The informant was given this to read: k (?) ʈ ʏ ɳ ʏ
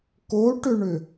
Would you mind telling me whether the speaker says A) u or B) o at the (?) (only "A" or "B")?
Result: B